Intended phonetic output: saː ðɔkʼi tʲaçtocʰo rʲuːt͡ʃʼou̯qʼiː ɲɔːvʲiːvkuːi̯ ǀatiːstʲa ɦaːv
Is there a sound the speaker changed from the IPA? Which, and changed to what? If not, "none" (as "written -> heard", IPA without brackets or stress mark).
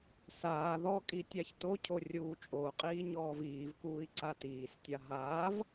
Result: vʲ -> v